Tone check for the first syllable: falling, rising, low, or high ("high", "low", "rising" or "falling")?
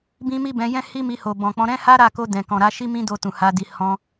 high